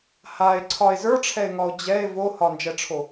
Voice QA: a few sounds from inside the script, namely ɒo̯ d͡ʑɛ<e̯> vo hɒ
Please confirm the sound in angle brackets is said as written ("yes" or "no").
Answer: yes